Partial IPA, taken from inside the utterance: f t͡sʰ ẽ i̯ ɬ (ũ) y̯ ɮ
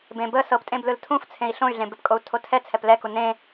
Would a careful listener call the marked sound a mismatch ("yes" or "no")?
yes